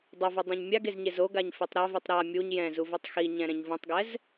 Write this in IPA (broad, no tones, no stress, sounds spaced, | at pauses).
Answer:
dˤ ʌ v ɯ dˤ ɛ̃ ɲ mʲ a ɡ e z ɲ e z o ɡ a ɲ f i tˤ ɾ a v i tˤ ɾ a mʲ u ɲ j ɛ̃ z u v ɛ tˤ x i ɲ ɛ̃ ɾ ɛ̃ ɲ v ũ tˤ ɡ ɛ z